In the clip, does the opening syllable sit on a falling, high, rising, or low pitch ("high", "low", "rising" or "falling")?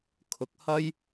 rising